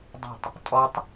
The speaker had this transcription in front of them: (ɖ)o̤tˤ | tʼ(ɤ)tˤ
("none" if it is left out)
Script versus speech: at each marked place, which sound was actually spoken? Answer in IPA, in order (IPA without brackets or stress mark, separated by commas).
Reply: dˤ, ɔ